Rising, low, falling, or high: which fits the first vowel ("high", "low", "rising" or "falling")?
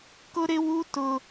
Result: high